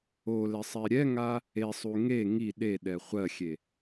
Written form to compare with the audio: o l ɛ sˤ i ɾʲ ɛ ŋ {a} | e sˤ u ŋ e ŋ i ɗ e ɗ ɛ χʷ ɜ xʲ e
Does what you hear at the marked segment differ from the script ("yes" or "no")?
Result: no